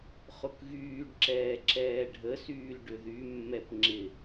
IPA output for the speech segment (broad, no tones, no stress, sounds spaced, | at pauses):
χ ʊ k ɣ yː ɖ ǁ ɛː ǁ ɛː ɖʱ ə s yː l ɖ ʏ ð y mː ɛ p ŋ͡ǁ ɪ